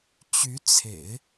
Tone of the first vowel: rising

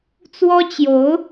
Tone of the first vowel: high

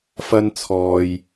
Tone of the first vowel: high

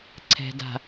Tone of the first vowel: low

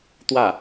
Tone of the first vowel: falling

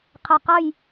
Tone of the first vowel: low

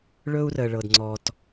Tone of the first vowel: high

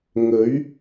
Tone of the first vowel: rising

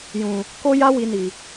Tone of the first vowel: low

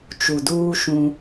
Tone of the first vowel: low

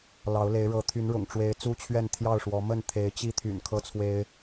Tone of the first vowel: rising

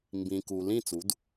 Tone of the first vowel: low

